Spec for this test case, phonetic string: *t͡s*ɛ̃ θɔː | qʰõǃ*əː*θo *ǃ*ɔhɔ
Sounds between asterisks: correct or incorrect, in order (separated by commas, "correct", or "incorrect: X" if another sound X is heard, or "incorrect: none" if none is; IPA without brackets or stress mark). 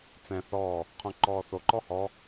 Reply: correct, incorrect: ɔː, correct